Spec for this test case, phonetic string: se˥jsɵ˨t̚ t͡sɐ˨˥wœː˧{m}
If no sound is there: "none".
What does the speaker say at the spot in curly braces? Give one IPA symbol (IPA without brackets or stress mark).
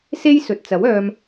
m